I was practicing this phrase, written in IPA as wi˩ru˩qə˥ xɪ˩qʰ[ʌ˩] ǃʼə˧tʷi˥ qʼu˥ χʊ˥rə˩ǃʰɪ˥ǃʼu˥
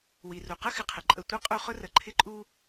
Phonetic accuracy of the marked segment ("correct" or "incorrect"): incorrect